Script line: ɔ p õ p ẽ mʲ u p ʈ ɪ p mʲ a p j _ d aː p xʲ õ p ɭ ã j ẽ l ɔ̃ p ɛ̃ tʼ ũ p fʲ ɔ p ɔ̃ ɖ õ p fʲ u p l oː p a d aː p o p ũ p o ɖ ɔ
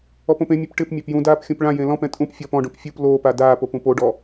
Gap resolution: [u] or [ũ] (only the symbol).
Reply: ũ